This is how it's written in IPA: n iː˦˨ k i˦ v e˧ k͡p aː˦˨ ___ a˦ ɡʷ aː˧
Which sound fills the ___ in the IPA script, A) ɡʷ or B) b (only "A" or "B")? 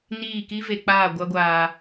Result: A